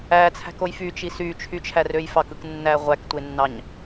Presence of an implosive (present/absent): absent